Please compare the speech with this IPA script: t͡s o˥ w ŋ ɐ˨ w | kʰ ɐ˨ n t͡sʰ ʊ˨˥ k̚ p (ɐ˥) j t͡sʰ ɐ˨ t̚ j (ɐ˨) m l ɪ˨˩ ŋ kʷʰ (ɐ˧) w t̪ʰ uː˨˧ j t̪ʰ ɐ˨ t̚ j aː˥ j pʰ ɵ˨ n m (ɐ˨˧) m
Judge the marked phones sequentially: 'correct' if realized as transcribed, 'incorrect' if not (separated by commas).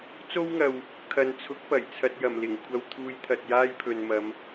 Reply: incorrect, incorrect, correct, correct